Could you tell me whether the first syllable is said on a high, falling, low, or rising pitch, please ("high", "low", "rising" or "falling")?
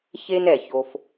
high